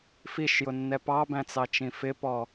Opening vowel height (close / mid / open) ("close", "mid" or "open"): close